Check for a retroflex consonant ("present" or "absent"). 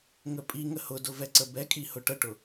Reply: present